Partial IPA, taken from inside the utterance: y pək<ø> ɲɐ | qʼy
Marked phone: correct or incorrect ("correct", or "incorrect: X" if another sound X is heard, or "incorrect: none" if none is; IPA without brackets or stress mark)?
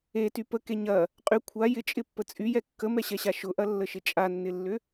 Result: incorrect: e